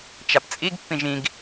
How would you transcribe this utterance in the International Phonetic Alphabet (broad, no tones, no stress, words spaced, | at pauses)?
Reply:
t͡ʃapt͡sʼiɡ pːĩʒĩɡ